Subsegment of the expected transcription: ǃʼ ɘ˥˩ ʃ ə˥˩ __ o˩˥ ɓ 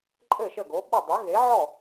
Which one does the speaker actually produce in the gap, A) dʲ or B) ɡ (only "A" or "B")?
B